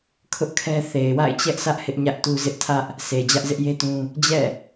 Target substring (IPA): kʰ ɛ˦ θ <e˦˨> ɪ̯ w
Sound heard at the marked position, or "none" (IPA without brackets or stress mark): e˨